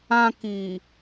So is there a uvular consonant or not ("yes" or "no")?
no